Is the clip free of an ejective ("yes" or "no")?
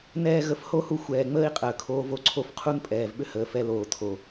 no